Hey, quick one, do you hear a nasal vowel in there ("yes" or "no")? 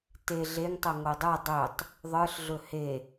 no